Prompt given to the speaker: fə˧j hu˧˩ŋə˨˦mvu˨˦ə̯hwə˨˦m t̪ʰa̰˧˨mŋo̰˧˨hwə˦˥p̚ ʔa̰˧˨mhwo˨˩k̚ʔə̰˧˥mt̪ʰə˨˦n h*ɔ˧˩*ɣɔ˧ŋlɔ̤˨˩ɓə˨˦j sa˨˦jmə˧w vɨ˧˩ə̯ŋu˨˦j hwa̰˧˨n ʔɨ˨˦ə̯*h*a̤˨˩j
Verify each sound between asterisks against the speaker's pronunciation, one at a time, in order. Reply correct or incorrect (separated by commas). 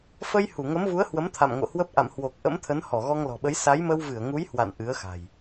correct, incorrect